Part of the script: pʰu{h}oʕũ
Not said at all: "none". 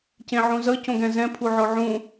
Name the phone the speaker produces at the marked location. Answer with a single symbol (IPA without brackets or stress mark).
ʕ